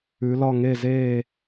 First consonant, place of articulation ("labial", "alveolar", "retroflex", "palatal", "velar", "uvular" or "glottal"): alveolar